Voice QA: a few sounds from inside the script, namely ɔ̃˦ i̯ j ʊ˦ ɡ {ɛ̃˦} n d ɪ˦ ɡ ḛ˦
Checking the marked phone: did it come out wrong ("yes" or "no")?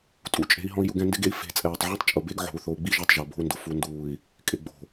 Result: no